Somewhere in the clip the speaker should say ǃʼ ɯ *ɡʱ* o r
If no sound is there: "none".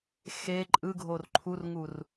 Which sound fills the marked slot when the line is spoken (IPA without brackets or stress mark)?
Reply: ɡʱ